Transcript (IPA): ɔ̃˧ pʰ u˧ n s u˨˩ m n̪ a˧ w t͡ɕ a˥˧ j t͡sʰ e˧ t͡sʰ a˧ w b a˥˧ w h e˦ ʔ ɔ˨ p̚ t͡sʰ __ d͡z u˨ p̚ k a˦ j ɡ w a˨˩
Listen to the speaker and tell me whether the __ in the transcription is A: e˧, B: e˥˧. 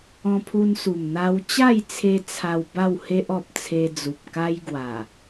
A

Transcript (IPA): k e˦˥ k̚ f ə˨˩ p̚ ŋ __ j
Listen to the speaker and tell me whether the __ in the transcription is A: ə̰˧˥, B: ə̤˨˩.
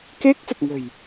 B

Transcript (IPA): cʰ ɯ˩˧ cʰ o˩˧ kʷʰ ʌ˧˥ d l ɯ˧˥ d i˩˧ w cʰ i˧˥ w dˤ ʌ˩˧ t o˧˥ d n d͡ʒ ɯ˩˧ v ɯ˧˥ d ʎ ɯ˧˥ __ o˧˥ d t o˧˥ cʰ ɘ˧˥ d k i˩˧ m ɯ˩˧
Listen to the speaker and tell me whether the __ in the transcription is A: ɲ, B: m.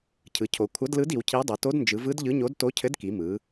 A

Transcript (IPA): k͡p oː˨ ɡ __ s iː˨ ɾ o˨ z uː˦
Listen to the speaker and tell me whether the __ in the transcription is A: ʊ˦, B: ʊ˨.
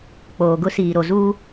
A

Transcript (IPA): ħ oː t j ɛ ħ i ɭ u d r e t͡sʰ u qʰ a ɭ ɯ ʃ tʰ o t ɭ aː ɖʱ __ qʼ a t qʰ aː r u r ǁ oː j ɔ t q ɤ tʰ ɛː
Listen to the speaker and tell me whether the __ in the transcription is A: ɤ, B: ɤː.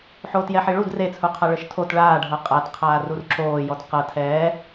A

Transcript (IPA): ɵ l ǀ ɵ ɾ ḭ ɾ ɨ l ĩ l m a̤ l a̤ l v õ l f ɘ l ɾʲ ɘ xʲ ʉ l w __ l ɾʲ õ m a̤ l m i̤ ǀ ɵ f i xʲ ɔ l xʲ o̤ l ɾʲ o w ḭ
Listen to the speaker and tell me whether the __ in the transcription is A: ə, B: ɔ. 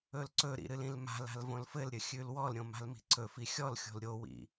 B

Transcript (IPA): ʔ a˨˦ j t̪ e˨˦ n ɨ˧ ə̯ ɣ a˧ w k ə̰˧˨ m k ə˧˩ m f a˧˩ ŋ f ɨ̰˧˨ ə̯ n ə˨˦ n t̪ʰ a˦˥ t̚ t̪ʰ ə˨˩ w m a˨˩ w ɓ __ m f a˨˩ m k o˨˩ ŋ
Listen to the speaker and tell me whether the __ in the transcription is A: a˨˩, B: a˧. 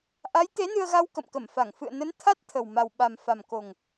A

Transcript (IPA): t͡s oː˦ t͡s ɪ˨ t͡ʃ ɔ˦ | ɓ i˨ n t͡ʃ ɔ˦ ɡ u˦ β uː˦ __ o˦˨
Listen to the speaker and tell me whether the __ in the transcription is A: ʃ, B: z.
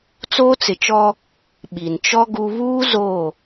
B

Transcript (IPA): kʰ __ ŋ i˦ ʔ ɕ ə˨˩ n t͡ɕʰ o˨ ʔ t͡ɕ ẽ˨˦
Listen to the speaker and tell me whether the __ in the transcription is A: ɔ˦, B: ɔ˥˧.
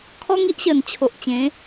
A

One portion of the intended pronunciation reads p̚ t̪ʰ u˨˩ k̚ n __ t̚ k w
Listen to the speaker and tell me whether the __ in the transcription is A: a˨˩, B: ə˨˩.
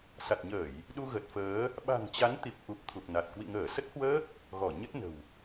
A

